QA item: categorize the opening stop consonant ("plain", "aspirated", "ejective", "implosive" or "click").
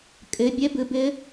ejective